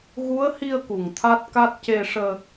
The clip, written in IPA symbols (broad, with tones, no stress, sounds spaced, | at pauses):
ɣ u˧˥ ə̯ h i˧ ə̯ k u˨˩ ŋ t̪ʰ a˦˥ t̚ k a˦˥ t̚ c e˧ ʂ əː˧